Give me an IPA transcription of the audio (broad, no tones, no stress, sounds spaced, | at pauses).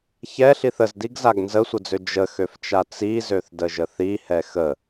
ç ɛ ɬ i θ ə z d i ɡ z a ɡ n z ə sʷ ə d͡z ø d͡ʒ ə x ø f t͡ʃ a t͡s i z ø θ d ə ʒ ə θ i h ɛ x ə